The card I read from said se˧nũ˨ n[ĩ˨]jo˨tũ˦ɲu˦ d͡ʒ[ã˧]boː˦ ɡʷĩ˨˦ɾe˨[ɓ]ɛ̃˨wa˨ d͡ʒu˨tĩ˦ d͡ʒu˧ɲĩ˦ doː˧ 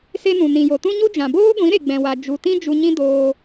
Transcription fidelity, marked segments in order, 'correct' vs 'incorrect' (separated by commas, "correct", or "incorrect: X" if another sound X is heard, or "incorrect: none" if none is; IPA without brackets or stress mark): correct, incorrect: ã˨, incorrect: ɡ͡b